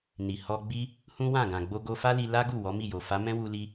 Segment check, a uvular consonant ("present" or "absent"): absent